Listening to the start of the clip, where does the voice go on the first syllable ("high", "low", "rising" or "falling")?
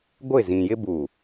falling